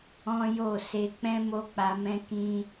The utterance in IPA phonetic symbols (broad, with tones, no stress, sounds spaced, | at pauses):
ɔ̃˦ j o˦˨ s e˧ k͡p ɛ̃˦ m o˦ k͡p a˧ m ɛ̃˦ k ĩ˧